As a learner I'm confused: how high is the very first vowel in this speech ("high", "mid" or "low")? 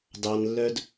low